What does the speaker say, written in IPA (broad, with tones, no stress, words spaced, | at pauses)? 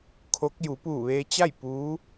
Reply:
kʰo˧˥k̚ ju˩˧puː˧˩ʋeː˧t͡ɕa˥˨j puː˧˥